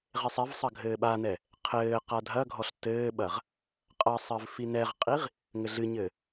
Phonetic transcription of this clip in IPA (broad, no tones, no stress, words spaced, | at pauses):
ʁesˤɛvsˤɐ ɡʱɘːɓanɛ | qʰɘːqa dʱɐɡʱɔɬ tɘːɓɐʁ | qʼɐsˤɘv finɛʁqʼiʁ | ŋɘɮɨɲɘː